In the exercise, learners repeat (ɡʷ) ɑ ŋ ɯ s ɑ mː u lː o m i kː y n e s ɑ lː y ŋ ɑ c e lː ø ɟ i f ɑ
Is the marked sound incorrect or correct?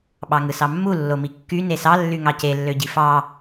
incorrect